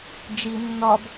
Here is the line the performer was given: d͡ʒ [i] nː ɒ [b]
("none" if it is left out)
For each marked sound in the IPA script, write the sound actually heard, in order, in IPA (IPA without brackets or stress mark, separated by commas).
i, b